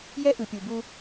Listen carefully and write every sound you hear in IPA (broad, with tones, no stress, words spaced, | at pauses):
jɛ˦ʔɯ˨pʲu˨bu˧